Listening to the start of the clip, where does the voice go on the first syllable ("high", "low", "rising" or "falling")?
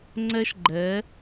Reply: high